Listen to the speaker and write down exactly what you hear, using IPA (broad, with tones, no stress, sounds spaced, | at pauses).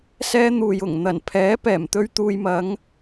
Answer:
s ɛː˥ n̪ uː˨ j ʊ˨˩ ŋ n̪ ɐ˨˩ n pʰ ɛː˨˥ p ɛː˨˩ m t̪ ɵ˥ ɥ t̪ uː˧ j m ɐ˨˥ ŋ